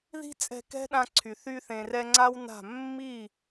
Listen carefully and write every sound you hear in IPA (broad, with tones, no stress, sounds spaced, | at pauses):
ð i̤˦ t͡sʼ ɛ̤˧ k ɛ̤˦ ɗ ã˧ ǀʰ y˨ θ y˧ θ ẽ˨ r ɛ˧ ŋ͡ǀ a˦ w n a̤˦˨ mː i˦˨